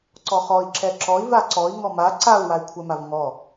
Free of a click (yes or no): no